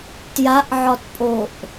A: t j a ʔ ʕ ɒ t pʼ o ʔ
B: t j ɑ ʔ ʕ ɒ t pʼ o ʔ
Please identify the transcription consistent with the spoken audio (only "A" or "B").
A